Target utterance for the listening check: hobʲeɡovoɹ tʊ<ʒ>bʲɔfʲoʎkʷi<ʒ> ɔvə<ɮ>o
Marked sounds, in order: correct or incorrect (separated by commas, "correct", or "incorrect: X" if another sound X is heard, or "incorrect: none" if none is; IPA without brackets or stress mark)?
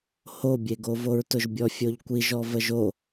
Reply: correct, correct, incorrect: ʒ